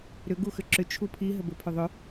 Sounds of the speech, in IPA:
ɾʏ ɡuxʏǁʏ t͡ʃʰupʰi ɦəbɘpʰʏðˤʏ

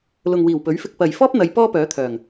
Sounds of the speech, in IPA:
lʊ˨ŋwiː˨˩wpɵ˨˥ɥfɪ˧k̚ pɐ˨j fɔː˥p̚n̪ɐ˨˧j pɔː˥pœː˨˥t̪ʰœː˨˩ŋ

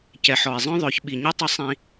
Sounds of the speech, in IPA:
cɛ˨ħɔ˨e̯zˤœ̃˦ðˤœ˨˦ç ɓi˨ɲɛ˦tˤɐ˦ sˤĩ˦

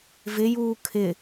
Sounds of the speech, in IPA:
vɪjuː kʰɪ

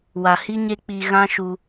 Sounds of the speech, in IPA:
wa˨hi˦ɲe˦ k͡pi˧ ɣã˦ʃu˧

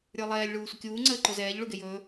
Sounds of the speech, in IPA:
ɾʲə˞lˠɛːlʲ ɭuːsʷəkʲuː ŋ͡ǀəːǃozɛːʎ ɭuɡejɵː

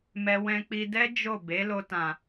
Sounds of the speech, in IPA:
mɛ˧ wɛ̃˧k͡pi˧dɛ˦ d͡ʒo˦˨ be˨˦lo˧tã˨

